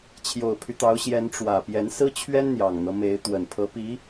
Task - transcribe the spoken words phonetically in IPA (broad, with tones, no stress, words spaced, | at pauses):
t͡ɕʰjo˨˩ʊ̯pʰy˦t̪ɑ˧˥ʊ̯ɕjɛ˧˥n ʈ͡ʂwä˨˩pjɛ˧˥n sɹ̩˥t͡ɕʰɥɛ˥n n̪jɑ˨˩ŋn̪ɤ˦me˧˥ɪ̯ t̪wə˨˩npʰɤ˧˥pi˧˥